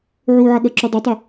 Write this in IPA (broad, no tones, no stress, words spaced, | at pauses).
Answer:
ʕuːʕʌɠʌǁu dˤʌtˤɛ